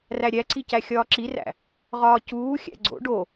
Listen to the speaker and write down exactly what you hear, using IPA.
r æ ɾʲ æ ǀ i c æ xʲ ɒː ǁ i r æ̰ | ʁ ɒː c uː xʲ æ̰ ɡ͡ǀ o̰ ɖ o

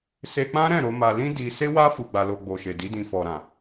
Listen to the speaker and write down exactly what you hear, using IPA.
s e˧ k͡p ã˦ ɾ ɛ̃˦˨ ɾ o˧ m a˧ l ĩ˦ d i˧ s e˦ w a˦ f u˧ ɡ͡b a˧ l o˧ ɡ͡b o˨ ʃ e˨ d i˨˦ d ĩ˧ f ɔ˨ ɾ ã˨

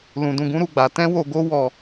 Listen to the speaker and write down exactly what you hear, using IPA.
l ũ˧ d ũ˧ ɡ ũ˦ ɾ u˦˨ ɡ͡b a˨˦ t ɛ̃˦ w o˧ ɡ o˦ w ɔ˧

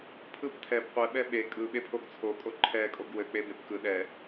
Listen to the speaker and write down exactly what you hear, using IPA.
pʰ ɯ p tʰ ɛ b qʷ ɛ ɓ ɛ ɓ e kʼ ɯ ɓ e pʰ o ɡ t͡sʰ o kʼ o ǃʰ ɛ kʼ o ɡ w ɘ k͡p e b e p k ɯ ɗ ɛ

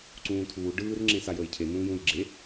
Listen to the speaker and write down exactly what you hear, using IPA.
ǀ ũː tʰ uː ɖ ɯː r ŋ͡ǁ ẽ s a j əː j cʰ e n ũː j ũː j ɡ͡ǁ e

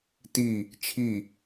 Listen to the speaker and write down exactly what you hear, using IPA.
t i | t͡ʃʰ i

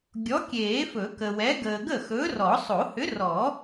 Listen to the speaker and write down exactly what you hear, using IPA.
ɡʲ ɔ˨˥ kʲ eː˨˩˦ f ɵ˨˩˦ k ə˨ w ɛ˨˥ ɡ əː˨ ɡ ə˥˩ x ɵ˨˥ r ɔ˨˩˦ sˤ o˨˩˦ h ʏ˨˥ r ɔ˨˩˦

